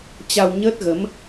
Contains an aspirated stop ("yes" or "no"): no